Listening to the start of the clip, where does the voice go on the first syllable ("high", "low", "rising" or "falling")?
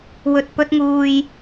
low